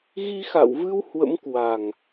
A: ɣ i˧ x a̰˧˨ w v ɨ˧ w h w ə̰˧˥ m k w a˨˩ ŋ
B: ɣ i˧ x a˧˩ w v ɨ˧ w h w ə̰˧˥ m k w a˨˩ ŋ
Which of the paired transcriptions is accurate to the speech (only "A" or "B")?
A